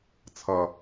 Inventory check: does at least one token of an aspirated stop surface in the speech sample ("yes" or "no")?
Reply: yes